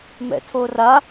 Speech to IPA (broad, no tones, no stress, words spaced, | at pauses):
mɛ̰tʰora